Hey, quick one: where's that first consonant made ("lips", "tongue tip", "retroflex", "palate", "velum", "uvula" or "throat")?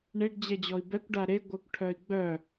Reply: retroflex